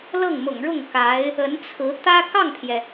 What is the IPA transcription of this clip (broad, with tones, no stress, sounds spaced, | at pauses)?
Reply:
l ɤ˥˩ ŋ m ʊ̰˨˩ ŋ ɻ ʊ˥˩ ŋ k a˧˥ ɪ̯ | ə˧˥ n t͡sʰ ɹ̩˧˥ t̪ ä˥ k ɑ˥˩ ŋ pʰ j ɛ˩